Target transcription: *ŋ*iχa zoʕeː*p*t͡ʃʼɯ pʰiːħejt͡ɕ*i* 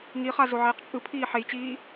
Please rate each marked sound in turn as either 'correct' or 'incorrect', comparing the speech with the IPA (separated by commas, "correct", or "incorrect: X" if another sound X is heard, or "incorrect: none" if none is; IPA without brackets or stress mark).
correct, incorrect: q, incorrect: iː